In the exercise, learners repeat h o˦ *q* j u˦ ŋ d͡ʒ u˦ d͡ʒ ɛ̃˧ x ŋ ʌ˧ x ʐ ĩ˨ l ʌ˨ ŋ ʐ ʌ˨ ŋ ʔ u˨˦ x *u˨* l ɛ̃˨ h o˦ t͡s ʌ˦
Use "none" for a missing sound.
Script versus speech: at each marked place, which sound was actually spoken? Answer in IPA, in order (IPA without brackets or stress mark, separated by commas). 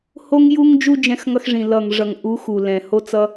ŋ, u˨